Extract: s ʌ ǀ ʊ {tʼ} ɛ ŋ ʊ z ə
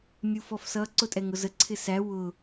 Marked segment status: correct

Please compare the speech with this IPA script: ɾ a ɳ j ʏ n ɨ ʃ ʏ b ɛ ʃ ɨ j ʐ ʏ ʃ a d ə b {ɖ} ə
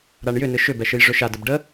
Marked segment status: correct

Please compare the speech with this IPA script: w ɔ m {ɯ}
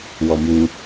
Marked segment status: incorrect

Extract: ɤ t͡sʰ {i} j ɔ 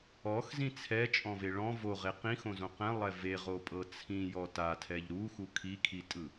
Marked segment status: incorrect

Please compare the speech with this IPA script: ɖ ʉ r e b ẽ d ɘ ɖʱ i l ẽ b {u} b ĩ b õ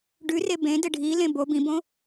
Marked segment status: incorrect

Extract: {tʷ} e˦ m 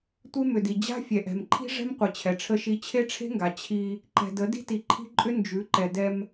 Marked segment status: correct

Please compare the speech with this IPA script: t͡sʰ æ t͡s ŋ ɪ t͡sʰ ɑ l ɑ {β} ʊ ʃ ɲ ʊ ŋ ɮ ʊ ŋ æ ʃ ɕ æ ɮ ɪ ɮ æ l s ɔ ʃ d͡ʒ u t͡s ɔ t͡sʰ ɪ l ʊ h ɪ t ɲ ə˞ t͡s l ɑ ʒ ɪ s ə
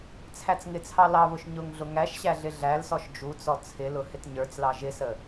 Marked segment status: correct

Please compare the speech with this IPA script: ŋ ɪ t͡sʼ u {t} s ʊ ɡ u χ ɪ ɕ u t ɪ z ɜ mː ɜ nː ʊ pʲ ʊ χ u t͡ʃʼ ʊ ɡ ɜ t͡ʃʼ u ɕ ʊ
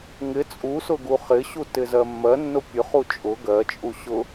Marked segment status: incorrect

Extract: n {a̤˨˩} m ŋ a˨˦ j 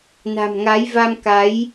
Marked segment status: correct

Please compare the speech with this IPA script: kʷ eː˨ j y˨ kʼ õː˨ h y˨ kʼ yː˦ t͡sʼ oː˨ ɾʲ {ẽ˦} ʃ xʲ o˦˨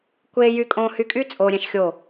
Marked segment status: incorrect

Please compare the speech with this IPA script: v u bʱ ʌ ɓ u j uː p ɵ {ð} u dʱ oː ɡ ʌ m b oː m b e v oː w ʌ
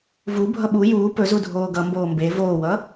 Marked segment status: incorrect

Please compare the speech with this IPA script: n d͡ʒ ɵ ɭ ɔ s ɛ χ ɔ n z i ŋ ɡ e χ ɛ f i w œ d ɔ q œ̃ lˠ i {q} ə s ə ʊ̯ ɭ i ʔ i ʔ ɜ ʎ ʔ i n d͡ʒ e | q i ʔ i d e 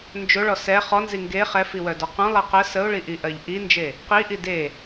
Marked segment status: correct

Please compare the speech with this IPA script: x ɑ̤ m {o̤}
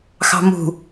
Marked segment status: incorrect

